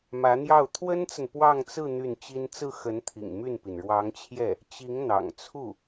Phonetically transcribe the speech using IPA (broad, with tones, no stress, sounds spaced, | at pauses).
m ä˧˥ n̪ j ɑ˥˩ ʊ̯ t̪ʰ w ə˥ n t͡s ə˨ n p w ɑ˥˧ ŋ t͡s ɹ̩˥˧ n̪ y˥˩ n t͡ɕ i˥ n t͡s ɹ̩˥˩ x ə˧˥ n t̪ʰ ḭ˨˩ ŋ m y˥˩ n p i˩ n ɻ w ɑ˧˥ ŋ t͡ɕʰ j ɛ˥˩ | t͡ɕ i˧˥ ŋ n̪ ɑ̰˨˩ ŋ t͡sʰ u˥˩